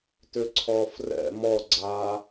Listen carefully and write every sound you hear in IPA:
t ʏ ǀʰ ɔː f r ɛ̰ m ɔ ɡ͡ǀ aː

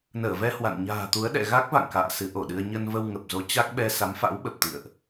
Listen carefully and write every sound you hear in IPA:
n əː˧˩ v ɛ˧ h w a̰˧˨ n ɲ a̤ː˨˩ t̪ u˨˦ ə̯ ɗ ɛ̰˧˨ ɣ a˦˥ k̚ v a̰˧˨ ŋ k a̰ː˧˨ s ɨ˨˦ ʔ o˧˩ ɗ ɨ˧ ə̯ ɲ ə˧ n v ə˧ w ŋ ə˨˩ p̚ z o˨˦ t͡ɕ a˦˥ k̚ ɓ ɛ˧ s a˨˦ m f a̰˧˥ w ɓ ə˨˩ p̚ t̪ ḭ˧˨ ə̯ ʔ

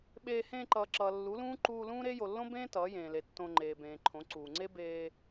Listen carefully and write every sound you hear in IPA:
ɓ eː˧ h ẽː˧ ǃ ʌː˨ ǁ ʌː˨ lː u˨˦ l ũː˦ ǃ uː˧ l ũː˦ ɾ e˦ j o˨ lː õ˦ b ẽː˦ t ʌː˨˦ j ẽː˨ l e˨ tː õ˧ ŋ͡ǃ eː˨ b ẽː˨ ǃʰ õ˨˦ ǀ uː˨ ŋ͡ǀ e˦ b eː˧

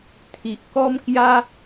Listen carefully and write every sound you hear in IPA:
t̪ʰ i˨ ʔ k ɔ˦ m k j a˦

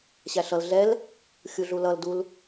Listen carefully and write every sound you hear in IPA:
ɕ æ ɬ ʌ l ɮ ɛ l | xʲ u ɮ u l ʌ l d u l

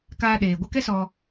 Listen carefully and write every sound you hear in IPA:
k aː˧ ɗ eː˨ ɡʷ ə˦ k ɛ˦ s ɔ˧

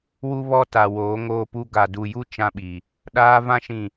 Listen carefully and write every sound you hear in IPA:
w u˦ β ɔ˦ t a˨ w oː˨˦ ŋ oː˦ p u˦ ɡ a˨ d u˨ j u˦ t͡ʃ ã˦ ɓ i˨ | ɗ aː˦ v ã˦ ʃ ĩ˨

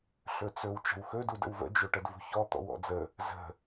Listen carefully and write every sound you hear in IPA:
ɬ ɵ t͡s ɵ w t͡ʃ ə̤ w x ɵ d u d ə̰ w v ə̰ d͡ʒ ɵ ʈ ə d v ṳ ç ɔ t̪ ɔ̰ w ɔ̰ d͡z ə | z ə̤

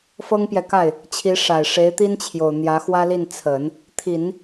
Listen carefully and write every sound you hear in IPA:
f ɤ˥ ŋ p j ɛ˨ k a˥˩ ɪ̯ | t͡ɕʰ i˧˥ ʂ a˨˩ ɪ̯ ʂ e˧˥ ɪ̯ t̪ i˥ n t͡ɕʰ j o˨˩ ʊ̯ n̪ j ä˧˥ x w ä˥ l i˥˩ n t͡sʰ ə˨˩˦ n | t̪ʰ i˨˩˦ n

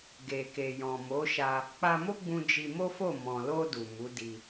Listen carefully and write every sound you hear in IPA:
ɡ e˨ k e˨ j ɔ̃˨ m o˨˦ ʃ a˧ | k͡p a˧ m o˦ ɡ͡b ũ˧ d͡ʒ i˧ m o˦ f o˦˨ m ɔ̃˨ l o˧ d u˨ m u˨˦ d i˧

